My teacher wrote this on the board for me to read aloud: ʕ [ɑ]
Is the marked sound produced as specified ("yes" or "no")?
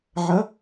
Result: no